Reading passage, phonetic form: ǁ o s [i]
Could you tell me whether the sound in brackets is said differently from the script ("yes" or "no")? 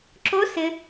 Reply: yes